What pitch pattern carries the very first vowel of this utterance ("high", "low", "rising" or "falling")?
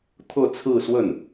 falling